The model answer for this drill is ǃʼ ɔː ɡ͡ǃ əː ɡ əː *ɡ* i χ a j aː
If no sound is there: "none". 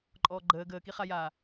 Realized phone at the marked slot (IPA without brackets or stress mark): k